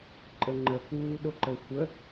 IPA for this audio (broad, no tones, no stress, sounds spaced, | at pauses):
ǃʼ ə ŋ͡ǃ ə k uː ɗ o ǃ ə xʷ ə